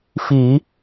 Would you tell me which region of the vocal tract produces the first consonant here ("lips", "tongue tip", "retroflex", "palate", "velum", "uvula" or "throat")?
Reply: lips